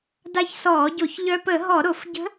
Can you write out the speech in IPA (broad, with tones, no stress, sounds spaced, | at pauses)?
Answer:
d a˧˥ ç s ɔː˧˩˧ ɟ o˧˩˧ ç ʎ œ˧ p ə˧˩˧ ɦ ɔ˧˩˧ ɾ o˧˩˧ f ɟ ə̤˧˥